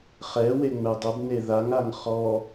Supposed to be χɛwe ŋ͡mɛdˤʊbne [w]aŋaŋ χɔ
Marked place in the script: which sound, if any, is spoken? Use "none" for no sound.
ð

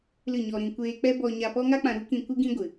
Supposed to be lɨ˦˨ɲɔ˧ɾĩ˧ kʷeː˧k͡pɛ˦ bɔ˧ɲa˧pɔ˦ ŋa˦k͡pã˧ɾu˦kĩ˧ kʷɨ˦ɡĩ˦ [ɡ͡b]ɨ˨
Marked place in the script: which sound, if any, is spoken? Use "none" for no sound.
ɡʷ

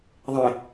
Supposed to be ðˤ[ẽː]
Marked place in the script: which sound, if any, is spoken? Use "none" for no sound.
ẽ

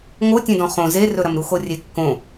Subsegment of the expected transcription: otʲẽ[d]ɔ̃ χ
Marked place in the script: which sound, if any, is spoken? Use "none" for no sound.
d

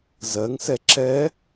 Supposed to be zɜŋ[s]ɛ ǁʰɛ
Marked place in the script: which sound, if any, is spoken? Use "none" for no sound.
s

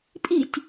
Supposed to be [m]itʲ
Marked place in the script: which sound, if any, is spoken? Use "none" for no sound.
pʼ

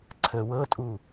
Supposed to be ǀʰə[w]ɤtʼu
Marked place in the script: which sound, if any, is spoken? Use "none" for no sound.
w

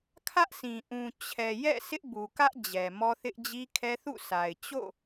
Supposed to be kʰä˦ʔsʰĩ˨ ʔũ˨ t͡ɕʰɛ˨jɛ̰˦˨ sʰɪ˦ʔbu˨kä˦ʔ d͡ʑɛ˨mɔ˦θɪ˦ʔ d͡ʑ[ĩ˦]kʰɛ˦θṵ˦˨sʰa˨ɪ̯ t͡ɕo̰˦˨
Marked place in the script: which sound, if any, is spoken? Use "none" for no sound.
i˦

